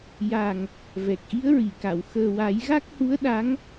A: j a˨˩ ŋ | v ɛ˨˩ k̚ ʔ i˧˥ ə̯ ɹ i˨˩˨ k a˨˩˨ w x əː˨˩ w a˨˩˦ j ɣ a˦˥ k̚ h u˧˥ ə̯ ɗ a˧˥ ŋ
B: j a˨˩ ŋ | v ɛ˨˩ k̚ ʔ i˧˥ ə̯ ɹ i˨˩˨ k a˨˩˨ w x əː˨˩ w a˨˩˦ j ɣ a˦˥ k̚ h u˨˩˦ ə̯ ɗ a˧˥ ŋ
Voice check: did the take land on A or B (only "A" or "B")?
A